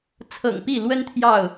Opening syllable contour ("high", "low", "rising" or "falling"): low